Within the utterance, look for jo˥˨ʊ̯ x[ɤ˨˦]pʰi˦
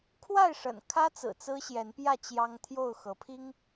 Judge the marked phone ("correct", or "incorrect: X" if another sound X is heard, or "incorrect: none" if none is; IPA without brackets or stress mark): correct